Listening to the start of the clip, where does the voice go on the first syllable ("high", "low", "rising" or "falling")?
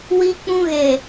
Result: high